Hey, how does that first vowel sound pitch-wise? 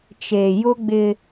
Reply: low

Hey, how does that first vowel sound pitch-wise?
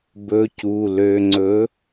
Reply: rising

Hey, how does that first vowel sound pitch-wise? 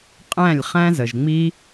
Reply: falling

